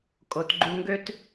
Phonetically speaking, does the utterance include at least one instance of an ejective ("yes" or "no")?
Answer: yes